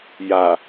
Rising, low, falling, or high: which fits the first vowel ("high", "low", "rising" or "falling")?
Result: low